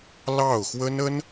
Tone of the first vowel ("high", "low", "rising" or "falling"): falling